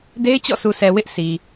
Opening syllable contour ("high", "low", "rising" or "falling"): high